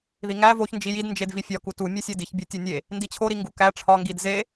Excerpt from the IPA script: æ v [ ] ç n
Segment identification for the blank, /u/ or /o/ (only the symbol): o